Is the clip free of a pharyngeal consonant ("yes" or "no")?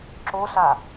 yes